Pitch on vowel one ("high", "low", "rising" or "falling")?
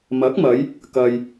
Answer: rising